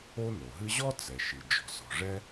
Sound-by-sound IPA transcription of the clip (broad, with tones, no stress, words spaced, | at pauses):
o˥no˩ɦɨ˥ ʑɔ˥t͡sɛ˩ʃi˩ d͡ʒɔ̤˩sɔ̤˩ ʐɛ˥